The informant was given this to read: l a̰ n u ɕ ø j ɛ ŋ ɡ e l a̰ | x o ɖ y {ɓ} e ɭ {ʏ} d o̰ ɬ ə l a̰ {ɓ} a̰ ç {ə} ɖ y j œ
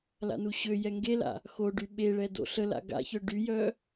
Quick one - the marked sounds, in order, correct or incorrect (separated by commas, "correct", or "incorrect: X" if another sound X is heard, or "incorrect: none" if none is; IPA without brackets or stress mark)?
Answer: correct, incorrect: ɛ, incorrect: ɡ, incorrect: œ